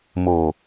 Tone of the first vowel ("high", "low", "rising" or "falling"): low